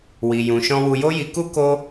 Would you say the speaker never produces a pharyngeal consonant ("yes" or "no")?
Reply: yes